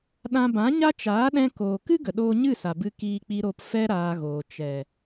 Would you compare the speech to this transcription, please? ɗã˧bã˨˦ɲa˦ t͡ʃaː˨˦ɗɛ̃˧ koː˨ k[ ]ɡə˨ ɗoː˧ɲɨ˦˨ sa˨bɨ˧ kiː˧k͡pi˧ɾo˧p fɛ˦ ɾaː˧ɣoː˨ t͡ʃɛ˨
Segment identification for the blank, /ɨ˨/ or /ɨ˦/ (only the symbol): ɨ˦